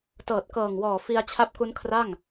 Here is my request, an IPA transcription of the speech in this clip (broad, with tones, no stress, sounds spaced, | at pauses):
t ɤː˨˩ t̚ k ɤː˨˩ ŋ w ɔː˨˩ f i˧ a̯ t͡ɕʰ a˦˥ p̚ k u˦˥ n kʰ r a˥˩ ŋ